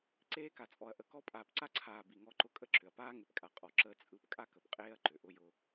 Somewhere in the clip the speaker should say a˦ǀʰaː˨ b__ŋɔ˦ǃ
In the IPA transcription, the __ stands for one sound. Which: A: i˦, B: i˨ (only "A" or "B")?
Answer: B